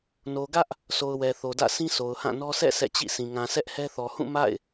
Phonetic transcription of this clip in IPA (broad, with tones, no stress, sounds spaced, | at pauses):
n o˨ ɡ ä˦ ʔ | sʰ o˨ ʊ̯ w ɛ˨ θ o˨ d ä̰˦˨ sʰ ĩ˦ sʰ o˨ ʊ̯ h ã˦˨ n ɔ˦ sʰ ɛ̰˦˨ sʰ ɛ̰˦˨ t͡ɕ ḭ˦˨ s ĩ˨ ŋ ã˨ s ɛ˦ ʔ h ɛ˦ θ ɔ˨ h ũ˦˨ m a̰˦˨ ɪ̯